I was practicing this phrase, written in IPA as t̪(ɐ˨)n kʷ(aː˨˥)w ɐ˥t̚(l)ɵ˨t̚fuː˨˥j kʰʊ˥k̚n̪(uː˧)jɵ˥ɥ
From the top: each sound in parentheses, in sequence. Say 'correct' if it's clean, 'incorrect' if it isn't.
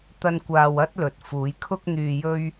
correct, incorrect: aː˧, correct, incorrect: yː˧

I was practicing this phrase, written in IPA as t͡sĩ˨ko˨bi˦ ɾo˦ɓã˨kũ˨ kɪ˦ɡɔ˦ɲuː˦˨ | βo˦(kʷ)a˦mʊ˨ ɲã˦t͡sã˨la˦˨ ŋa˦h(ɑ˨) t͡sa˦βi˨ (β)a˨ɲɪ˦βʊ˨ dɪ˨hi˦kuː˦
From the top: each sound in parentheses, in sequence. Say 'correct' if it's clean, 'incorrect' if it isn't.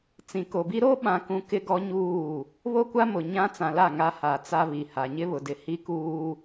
correct, incorrect: a˨, incorrect: h

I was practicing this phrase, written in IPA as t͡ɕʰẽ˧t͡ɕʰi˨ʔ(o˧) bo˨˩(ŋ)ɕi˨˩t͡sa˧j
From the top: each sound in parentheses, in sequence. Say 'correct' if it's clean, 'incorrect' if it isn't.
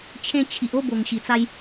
incorrect: o˥˧, correct

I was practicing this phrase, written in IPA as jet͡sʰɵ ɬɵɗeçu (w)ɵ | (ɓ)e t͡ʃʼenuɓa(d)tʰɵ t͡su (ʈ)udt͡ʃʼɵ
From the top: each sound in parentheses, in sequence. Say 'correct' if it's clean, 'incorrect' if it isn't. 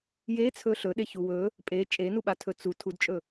correct, incorrect: pʼ, incorrect: none, incorrect: tʰ

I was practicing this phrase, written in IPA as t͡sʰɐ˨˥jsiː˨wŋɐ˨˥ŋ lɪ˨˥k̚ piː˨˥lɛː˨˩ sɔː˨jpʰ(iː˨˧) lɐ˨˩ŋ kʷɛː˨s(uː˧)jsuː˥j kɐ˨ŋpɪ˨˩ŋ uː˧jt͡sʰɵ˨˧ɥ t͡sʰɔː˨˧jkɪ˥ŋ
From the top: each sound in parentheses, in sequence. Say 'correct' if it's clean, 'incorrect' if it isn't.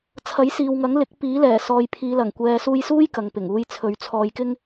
correct, correct

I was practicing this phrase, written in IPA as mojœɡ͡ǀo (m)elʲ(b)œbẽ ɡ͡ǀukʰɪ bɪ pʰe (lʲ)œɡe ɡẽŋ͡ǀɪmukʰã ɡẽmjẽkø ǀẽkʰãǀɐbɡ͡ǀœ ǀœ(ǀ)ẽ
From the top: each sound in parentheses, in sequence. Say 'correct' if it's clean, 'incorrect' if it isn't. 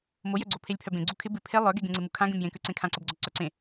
incorrect: pʰ, incorrect: pʰ, incorrect: lˠ, correct

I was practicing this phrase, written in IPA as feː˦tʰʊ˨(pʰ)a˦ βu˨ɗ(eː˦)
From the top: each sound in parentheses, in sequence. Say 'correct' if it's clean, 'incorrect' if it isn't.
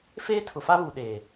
incorrect: f, incorrect: eː˨

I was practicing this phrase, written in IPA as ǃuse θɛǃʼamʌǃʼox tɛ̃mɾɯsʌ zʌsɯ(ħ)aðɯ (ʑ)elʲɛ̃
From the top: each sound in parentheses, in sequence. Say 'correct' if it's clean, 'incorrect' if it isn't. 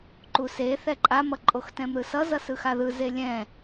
incorrect: x, incorrect: z

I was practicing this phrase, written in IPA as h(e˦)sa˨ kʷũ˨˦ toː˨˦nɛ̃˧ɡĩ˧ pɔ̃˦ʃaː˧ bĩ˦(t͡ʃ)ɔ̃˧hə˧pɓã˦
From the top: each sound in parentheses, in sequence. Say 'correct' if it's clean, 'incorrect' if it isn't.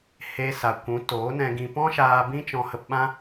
incorrect: e˧, correct

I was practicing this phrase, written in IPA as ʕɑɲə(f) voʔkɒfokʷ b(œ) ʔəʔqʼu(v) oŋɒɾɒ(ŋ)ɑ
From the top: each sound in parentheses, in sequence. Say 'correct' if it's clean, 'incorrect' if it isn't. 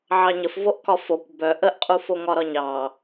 correct, correct, incorrect: f, incorrect: ɲ

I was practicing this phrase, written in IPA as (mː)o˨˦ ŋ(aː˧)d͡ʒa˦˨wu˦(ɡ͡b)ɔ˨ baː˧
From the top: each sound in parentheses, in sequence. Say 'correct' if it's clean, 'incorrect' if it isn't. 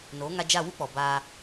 incorrect: n, incorrect: a˧, incorrect: k͡p

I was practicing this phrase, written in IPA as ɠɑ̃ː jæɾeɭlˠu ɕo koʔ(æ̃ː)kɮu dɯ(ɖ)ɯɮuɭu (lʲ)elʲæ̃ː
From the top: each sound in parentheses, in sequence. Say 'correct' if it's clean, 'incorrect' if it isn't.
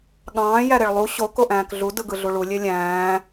correct, incorrect: ɡ, correct

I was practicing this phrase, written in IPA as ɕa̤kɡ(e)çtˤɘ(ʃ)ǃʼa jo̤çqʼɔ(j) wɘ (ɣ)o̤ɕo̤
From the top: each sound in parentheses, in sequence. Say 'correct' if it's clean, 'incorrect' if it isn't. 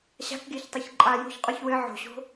correct, incorrect: ç, incorrect: ç, incorrect: ʕ

